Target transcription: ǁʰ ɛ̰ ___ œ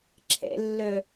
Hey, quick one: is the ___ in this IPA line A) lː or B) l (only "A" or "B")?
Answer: A